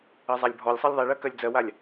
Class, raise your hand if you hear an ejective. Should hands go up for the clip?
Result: no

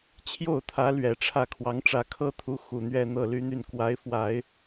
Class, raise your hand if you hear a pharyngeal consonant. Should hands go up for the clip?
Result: no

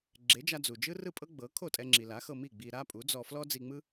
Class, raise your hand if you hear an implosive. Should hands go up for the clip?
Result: no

